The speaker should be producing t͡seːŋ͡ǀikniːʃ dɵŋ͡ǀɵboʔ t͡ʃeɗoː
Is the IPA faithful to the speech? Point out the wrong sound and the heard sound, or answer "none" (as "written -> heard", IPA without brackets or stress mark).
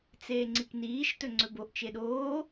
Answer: d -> t